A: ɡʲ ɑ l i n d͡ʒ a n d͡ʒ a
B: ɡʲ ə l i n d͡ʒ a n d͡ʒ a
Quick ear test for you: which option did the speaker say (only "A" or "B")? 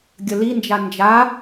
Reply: B